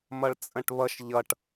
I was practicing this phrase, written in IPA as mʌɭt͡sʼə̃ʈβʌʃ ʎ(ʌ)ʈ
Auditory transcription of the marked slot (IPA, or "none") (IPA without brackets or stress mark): ʌ